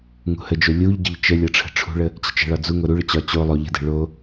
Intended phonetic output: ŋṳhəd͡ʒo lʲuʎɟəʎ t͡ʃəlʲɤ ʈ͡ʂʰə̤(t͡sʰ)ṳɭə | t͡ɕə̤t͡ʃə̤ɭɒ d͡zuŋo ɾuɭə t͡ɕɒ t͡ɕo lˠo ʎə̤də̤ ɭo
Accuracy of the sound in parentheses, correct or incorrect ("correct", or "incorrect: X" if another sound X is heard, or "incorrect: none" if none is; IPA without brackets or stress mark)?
incorrect: ʈ͡ʂʰ